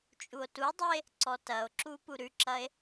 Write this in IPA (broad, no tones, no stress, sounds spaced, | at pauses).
t͡ʃʼ u o̯ t u dˤ e | ǀ ɔ t ɐ o̯ ǁ u p u ɾ ʉ ǁ ɐ e̯